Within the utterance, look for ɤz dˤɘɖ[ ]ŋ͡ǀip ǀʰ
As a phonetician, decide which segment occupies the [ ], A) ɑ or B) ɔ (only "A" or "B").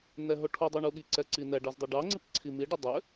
A